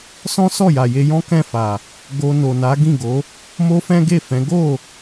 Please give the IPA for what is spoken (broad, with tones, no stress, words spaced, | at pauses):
sɔ̃˦sɔ˦˨ja˨ je˧jɔ̃˦kɛ̃˦˨ fa˨ | ɡo˧no˨na˨˦ ɡĩ˦˨ɡo˨˦ | mo˦fɛ̃˦ɡe˦˨fɛ̃˨˦ ɡo˦˨